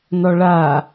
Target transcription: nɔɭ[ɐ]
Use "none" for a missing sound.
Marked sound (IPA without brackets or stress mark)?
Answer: a